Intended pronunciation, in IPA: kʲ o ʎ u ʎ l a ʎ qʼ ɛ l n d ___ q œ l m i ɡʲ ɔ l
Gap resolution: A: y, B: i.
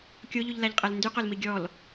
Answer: A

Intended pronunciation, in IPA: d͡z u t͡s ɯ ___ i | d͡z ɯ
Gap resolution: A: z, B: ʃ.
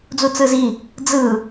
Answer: A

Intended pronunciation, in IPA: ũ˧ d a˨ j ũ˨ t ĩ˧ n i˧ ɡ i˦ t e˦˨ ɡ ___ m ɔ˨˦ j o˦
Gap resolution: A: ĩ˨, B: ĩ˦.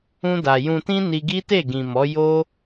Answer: A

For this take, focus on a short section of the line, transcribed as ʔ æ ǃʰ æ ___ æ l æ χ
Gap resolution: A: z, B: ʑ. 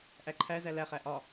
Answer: A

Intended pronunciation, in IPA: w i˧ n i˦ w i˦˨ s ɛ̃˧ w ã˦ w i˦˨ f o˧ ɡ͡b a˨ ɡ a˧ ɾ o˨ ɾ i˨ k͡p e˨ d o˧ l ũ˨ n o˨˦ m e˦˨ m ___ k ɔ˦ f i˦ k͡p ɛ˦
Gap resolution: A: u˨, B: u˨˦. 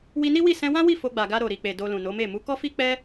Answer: B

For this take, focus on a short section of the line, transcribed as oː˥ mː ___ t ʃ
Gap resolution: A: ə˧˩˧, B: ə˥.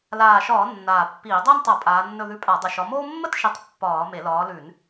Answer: B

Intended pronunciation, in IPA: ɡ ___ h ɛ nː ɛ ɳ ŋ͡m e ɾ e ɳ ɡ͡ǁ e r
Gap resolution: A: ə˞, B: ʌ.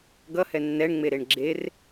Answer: B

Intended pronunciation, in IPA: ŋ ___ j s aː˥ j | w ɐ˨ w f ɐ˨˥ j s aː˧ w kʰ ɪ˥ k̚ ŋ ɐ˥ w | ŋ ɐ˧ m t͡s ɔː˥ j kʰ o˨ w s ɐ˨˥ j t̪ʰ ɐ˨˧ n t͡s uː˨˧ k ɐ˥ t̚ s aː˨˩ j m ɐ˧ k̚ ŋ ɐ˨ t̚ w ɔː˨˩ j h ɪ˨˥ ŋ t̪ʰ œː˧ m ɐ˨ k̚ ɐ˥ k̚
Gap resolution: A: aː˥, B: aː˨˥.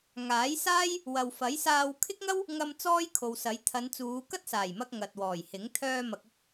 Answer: B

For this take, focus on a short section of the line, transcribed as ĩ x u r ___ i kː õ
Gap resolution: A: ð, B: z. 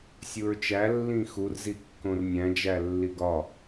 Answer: B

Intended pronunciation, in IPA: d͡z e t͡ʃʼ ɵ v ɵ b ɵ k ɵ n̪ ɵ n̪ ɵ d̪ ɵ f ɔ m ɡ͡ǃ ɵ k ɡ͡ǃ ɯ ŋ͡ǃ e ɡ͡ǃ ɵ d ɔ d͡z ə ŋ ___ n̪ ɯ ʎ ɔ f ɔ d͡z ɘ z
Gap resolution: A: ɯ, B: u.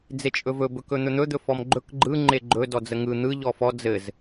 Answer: A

